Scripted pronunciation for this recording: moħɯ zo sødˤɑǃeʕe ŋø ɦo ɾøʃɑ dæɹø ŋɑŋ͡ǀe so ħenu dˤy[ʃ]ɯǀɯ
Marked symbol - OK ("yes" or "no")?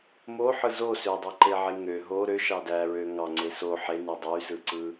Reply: no